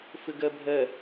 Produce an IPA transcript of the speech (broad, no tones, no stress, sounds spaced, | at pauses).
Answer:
f ɪ ɡ ɛ bʱ ɛ